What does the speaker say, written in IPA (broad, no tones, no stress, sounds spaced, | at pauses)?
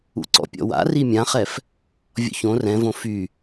ṵ ǀ ɔ̰ pʲ ɔ̰ w a̰ r i mʲ ã χ ɛ f | vʲ ɔ̰ ç õ r ɛ̃ v õ f y